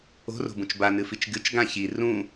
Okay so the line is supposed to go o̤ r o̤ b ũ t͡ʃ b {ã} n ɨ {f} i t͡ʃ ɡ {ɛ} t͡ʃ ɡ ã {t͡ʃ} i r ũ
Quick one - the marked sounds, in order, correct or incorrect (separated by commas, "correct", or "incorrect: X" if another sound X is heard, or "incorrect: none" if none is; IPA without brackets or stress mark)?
incorrect: a, correct, incorrect: ɨ, incorrect: ç